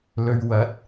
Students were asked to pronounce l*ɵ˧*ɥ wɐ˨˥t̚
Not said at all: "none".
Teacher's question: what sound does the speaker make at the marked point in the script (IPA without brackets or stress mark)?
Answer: ɵ˧